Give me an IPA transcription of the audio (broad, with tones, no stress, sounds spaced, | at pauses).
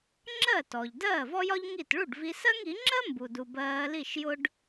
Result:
ŋ͡ǁ ɜ˥˩ t ɔ˩ ʎ d ɜː˥˩ v ɔ˥ j ɒ˥ ʎ ŋ i˥˩ t ɭ u˥˩ ɖ v i˧ s ɜ˥ ŋ i˩˥ ŋ͡ǁ ɜ˥ m b u˩ d u˩ b ɜː˧ l i˥˩ ʃ j ʊ˥ ɖ